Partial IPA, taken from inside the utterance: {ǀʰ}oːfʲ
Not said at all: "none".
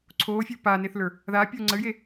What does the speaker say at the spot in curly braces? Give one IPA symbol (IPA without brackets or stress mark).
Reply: ǀʰ